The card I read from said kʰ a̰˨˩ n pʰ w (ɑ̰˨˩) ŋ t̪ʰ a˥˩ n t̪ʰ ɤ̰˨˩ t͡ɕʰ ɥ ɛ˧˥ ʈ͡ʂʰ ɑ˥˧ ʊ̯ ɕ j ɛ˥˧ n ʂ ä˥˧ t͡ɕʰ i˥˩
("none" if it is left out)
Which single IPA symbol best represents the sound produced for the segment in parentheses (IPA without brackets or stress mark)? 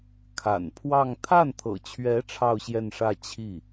ɑ˥˧